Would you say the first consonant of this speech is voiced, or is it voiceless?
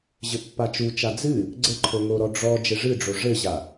voiced